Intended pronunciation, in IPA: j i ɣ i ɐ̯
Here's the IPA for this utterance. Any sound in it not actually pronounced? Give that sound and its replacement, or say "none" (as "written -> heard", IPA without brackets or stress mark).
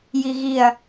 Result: none